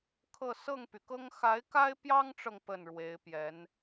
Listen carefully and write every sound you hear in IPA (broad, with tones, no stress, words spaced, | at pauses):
kʰɤ˥˧ sɤ˥˩ŋpy˩kɤ˥ŋ xa˧˥ɪ̯ka˥ɪ̯pjɑ˥ŋʈ͡ʂɤ˨ŋ pə˥˩nɻwe˧˥ɪ̯pjɛ˧˥n